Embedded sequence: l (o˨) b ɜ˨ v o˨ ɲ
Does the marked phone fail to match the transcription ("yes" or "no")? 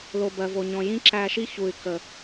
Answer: no